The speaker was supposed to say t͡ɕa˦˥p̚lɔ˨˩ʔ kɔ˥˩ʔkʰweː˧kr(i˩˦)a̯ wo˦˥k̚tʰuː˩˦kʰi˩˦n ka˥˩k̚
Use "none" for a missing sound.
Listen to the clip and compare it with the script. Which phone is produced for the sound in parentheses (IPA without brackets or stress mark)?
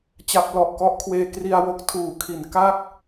i˧